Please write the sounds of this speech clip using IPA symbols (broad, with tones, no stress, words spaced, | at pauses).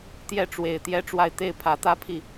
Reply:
t̪jɛ˥˩ʈ͡ʂwe˨˩ɪ̯ t̪jɛ˥˧ʈ͡ʂwa˥˧ɪ̯ t̪e˥˩ɪ̯pʰä˧˥t̪ä˥pʰi˥˩